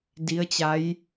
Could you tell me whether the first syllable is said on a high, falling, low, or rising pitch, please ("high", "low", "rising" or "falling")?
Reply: rising